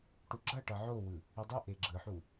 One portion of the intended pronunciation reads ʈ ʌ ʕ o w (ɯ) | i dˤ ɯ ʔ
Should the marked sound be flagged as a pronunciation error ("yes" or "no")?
no